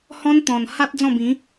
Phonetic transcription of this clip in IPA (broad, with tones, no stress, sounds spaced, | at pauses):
h ɔ̃˦ n t̪ ɔ̃˨˩ n h a˦ t̚ d͡z ɔ̃˥˧ b ĩ˨˦